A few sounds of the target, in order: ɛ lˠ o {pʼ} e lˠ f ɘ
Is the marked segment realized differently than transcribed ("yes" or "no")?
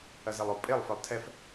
no